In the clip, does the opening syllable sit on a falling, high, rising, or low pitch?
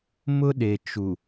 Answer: high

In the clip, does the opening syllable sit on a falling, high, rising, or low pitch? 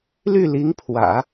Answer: falling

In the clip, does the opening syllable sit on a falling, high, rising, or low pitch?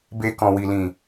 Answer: low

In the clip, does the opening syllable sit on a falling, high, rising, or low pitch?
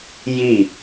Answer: falling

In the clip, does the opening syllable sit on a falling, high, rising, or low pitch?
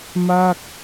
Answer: falling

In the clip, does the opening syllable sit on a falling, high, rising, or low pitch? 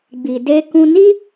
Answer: low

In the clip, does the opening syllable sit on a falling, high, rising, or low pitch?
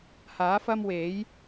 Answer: rising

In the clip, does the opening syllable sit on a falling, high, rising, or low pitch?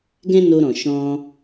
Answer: high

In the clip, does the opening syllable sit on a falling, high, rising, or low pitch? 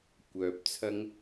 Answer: low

